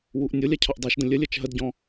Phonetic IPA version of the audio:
wuʔnʲʊlʲa cʰɒʔdˤɛʃdə̃ lʲəlʲɜt͡ʃ ɦədɟɔ̃

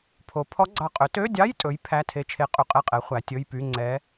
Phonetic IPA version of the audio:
pʰo˩˧pʰɔ˧˥ɡ͡ǀɑ˧˩qʼɵ˩˥ tø˧˥˧dʲɑ˧˥˧jtʼɵ˩˧j pʰæ˧˥˧ tʰe˧˥t͡ʃʰe˧˥qʼy˧˩ qʼɛ˥˨qʼɛ˩˥ χʷæ˩˧tʲɵ˧˥˧jpy˧˥˧ ŋ͡ǀɛ˧˥

